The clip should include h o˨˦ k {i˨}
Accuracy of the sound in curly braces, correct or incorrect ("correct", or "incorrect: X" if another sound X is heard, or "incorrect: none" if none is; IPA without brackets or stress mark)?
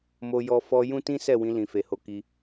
incorrect: i˧